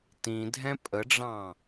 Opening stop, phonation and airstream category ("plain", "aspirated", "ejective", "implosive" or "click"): plain